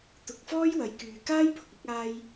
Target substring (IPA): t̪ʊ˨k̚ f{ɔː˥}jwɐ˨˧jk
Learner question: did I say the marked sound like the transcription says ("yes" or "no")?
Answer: yes